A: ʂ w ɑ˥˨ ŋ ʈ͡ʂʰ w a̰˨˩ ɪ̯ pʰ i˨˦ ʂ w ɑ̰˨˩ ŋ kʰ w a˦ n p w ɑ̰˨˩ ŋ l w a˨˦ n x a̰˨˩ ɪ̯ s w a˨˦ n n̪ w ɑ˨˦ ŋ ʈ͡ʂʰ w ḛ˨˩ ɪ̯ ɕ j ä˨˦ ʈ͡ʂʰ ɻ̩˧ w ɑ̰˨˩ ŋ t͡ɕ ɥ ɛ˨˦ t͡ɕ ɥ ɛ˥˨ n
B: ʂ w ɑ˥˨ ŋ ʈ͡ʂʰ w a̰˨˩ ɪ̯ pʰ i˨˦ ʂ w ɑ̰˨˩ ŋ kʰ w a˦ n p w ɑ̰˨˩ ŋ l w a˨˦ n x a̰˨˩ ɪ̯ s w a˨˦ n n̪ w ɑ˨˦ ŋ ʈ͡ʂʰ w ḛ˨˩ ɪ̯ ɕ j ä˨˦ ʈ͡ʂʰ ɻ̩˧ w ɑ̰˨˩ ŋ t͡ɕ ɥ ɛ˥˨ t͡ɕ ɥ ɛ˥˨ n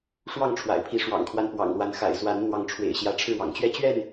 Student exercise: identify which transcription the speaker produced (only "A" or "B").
B